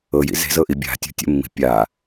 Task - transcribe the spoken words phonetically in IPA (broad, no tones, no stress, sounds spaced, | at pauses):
ɤ j ḭ z e̤ z ɤ ʔ i bʲ a̤ tʲ ṳ tʲ ə̰ mː i̤ pʲ a